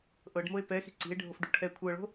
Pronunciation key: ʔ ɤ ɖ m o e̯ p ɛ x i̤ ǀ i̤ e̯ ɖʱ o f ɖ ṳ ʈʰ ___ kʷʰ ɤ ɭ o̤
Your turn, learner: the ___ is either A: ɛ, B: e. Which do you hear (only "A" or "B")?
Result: A